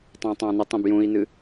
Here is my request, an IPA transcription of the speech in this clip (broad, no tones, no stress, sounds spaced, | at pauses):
tˤ ɑ̃ tˤ ɑ̃ n ə tˤ ə̃ b j ũ i̯ n ɨ